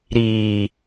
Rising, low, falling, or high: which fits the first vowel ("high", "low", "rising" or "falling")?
low